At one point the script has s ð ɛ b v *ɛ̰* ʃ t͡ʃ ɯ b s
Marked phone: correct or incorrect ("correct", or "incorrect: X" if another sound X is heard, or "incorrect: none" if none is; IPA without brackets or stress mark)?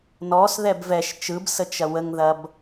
incorrect: ɛ